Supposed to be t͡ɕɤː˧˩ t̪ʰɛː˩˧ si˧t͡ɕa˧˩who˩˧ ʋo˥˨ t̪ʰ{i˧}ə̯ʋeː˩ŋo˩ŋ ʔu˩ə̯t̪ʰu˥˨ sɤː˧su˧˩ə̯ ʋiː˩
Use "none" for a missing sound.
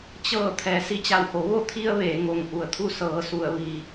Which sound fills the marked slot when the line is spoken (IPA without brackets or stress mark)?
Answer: i˧